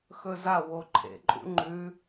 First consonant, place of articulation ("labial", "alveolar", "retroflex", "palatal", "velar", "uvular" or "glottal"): velar